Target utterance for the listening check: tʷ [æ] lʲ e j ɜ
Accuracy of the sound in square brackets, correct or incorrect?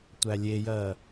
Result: correct